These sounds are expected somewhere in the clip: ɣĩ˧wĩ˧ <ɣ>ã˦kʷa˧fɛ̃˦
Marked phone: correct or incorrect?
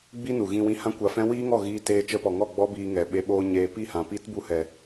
incorrect